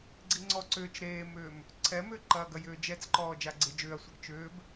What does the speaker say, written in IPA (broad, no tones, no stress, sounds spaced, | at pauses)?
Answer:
ɡ͡ǀ i ŋ͡ǀ ɔ ǀ ʏː t͡ʃ ɾ eː m ʏː m | ǀʰ ɛ m ʏː ǃ ɐː ɡ ɐ j ʏː d͡ʒ ɛ t͡s ǃ ɔː d͡ʒ a ɡ͡ǀ e d͡ʒ ʏː ɐ̯ sʷ ɛ ɡ t͡ʃ ʏː b